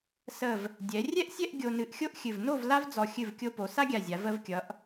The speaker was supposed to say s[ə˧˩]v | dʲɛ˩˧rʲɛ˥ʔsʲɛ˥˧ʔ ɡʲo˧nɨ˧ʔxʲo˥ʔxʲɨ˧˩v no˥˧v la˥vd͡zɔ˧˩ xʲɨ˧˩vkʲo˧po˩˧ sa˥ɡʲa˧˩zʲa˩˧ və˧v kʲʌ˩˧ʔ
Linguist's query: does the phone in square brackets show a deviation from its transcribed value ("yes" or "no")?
no